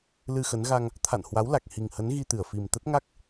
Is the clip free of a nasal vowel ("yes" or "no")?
yes